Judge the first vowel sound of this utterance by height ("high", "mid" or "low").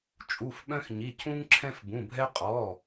high